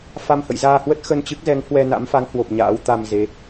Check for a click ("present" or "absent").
absent